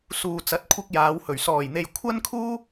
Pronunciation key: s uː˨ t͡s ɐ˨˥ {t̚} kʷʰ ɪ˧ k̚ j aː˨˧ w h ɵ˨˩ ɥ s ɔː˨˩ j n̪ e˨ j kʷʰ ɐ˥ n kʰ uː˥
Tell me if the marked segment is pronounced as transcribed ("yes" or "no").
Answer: yes